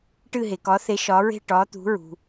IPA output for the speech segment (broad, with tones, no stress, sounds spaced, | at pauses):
ʈ ɨ˥˩ ɦ e˩ k ɒ˩˥ θ e˩˥ ʃ ɒ˩˥ ɹ e̤˥˩ ʈ ɒː˩˥ t̪ ṳ˩˥ ɹ ṳ˩